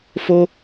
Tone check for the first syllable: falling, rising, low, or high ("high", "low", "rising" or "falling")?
high